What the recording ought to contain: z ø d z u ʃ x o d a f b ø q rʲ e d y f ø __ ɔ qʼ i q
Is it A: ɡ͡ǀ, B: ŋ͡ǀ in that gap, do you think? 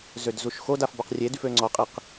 B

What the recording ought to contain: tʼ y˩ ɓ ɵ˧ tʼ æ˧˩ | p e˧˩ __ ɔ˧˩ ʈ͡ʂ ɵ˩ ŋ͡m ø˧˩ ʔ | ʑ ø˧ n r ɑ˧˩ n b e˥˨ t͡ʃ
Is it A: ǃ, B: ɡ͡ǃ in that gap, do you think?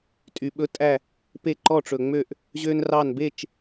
A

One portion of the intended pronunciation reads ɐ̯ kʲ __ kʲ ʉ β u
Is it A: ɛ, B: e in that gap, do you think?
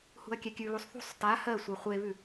A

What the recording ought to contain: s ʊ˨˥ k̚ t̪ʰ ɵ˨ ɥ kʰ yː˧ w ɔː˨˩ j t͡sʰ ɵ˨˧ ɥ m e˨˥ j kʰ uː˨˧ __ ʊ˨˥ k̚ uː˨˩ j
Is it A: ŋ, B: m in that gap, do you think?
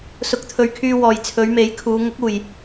A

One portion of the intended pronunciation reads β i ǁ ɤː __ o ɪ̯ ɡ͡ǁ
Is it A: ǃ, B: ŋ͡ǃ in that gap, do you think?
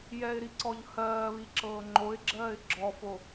B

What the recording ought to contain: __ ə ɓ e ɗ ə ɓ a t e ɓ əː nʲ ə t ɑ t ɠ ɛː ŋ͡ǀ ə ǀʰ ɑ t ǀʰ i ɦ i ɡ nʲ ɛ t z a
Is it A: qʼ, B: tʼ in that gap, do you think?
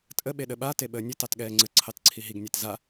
B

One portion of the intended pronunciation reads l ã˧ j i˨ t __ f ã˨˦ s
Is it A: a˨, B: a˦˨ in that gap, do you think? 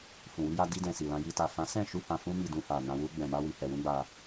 A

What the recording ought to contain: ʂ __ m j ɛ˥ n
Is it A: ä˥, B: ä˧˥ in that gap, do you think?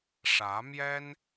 B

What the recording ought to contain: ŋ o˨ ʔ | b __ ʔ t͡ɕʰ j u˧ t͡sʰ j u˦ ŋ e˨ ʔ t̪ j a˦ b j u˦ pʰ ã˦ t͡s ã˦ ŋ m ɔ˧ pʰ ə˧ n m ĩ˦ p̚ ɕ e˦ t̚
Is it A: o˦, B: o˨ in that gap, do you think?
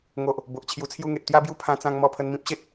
B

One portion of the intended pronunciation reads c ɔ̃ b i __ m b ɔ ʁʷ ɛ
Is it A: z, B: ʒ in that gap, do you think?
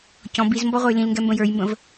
A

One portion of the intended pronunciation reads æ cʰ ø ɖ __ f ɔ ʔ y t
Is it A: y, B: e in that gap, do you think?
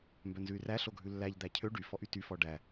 A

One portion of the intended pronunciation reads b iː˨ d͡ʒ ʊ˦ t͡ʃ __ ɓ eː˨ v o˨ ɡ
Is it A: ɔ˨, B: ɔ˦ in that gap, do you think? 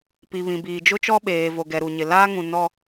B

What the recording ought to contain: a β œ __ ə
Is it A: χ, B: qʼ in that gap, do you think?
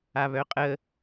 B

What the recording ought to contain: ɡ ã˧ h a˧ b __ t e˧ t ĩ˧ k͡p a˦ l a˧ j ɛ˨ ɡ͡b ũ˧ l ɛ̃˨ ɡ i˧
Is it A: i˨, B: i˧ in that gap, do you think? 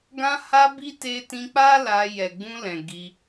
B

